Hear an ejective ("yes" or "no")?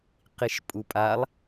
yes